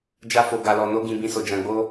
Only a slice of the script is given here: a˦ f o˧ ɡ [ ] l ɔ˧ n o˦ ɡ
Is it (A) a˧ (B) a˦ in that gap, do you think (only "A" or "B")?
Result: A